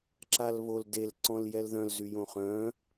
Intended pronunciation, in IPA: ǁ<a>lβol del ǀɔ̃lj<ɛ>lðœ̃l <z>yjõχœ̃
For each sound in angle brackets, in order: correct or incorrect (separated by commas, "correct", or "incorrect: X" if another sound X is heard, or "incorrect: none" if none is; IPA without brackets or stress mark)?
correct, correct, correct